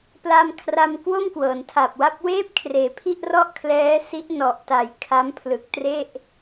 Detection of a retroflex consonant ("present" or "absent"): absent